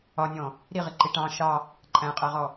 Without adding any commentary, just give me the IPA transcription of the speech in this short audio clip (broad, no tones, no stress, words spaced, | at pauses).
ɒnʲɔ̃ | ɾiʁiǃi ʈɑ̃ ʃɑ | ǃʼæ̃qʼæʁɔ